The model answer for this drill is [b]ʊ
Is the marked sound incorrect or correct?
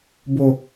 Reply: correct